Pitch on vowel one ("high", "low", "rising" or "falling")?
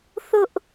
high